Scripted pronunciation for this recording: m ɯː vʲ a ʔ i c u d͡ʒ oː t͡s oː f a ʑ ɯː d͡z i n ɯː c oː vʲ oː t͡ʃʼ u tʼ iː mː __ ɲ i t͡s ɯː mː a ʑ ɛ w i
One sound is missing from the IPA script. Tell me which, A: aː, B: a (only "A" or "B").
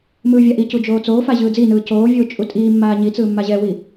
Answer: A